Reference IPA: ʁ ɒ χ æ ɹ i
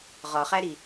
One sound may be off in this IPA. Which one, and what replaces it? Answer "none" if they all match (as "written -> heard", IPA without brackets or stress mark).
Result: ɹ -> ɾ